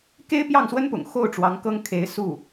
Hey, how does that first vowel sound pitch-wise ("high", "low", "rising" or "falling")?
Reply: high